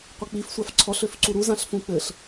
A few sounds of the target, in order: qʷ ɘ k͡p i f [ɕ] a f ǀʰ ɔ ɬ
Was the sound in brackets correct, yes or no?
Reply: no